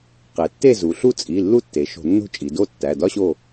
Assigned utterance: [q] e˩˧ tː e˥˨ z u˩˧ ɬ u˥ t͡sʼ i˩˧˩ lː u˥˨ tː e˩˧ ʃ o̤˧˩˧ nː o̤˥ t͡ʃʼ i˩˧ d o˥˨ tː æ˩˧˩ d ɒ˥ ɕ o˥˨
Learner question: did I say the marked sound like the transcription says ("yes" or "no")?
yes